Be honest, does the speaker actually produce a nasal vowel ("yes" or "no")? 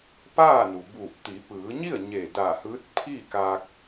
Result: no